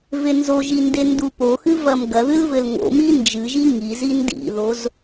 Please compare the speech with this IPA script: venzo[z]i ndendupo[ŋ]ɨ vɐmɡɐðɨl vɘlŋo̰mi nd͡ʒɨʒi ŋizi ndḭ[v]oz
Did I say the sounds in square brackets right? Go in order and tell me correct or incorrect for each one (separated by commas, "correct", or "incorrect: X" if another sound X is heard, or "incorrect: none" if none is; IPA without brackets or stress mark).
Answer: incorrect: ʒ, incorrect: x, incorrect: ð